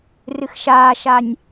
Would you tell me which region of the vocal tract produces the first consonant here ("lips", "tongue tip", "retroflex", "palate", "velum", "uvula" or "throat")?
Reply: tongue tip